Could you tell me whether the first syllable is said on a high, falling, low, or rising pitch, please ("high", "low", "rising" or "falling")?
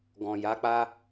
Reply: low